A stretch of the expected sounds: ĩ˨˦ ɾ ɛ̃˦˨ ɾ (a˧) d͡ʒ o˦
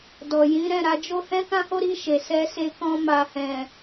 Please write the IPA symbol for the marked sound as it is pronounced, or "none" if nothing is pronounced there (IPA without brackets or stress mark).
a˨˦